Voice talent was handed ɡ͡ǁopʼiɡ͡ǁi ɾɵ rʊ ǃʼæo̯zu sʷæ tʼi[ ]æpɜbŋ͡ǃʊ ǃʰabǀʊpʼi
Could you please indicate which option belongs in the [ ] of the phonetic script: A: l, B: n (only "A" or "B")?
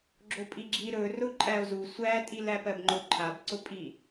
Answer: A